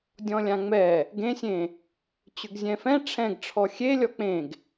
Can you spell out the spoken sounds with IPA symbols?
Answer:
dʲɔ̃lʲãŋ͡mɛ | ɡẽsʲẽ | t͡ɕʏɡzʲɛ̃fɛ̃ ʈ͡ʂʰɛ̃ɡʈ͡ʂʰɔ xʲe lʲɔk͡pẽɡ

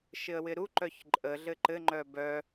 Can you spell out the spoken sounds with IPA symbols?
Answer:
ʃɪə̯wɪɾu ǃœçǃʼə ɮɘǃɘ ŋ͡ǃœbœ

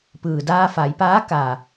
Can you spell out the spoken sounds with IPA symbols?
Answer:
pɯː˩daː˧fa˩˧jpaː˧˥ ka˩

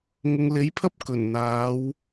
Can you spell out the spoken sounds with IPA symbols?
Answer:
ŋʊ˨ŋle˨˥jpʰɐ˥p̚ kɵ˨˩nn̪aː˨˧w

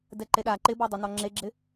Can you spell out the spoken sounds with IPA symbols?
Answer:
dɛǃeɗa ǃɪbɔdˤʊ nɔŋ͡ǁeɡ͡ǁɪ

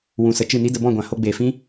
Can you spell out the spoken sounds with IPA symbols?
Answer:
wũ˨sə˨ t͡ʃɨ˦˨ni˦də˧ bɔ̃˦˨ɡʷã˨ ho˧ɡ͡beː˨fĩ˦

